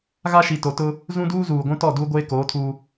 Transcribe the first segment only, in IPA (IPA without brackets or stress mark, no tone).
ɣ